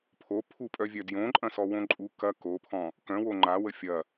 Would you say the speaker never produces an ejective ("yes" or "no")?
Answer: no